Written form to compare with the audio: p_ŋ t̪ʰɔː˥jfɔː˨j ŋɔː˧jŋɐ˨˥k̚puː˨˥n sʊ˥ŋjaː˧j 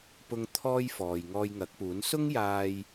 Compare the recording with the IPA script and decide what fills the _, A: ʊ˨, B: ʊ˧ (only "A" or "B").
B